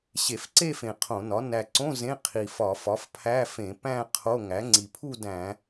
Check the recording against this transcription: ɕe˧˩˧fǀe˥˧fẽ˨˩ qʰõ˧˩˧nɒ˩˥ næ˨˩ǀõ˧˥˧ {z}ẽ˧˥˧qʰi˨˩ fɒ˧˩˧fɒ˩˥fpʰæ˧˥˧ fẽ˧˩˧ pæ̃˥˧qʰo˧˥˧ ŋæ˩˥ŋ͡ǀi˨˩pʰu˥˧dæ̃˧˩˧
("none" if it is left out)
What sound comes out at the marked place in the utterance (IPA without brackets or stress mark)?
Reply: z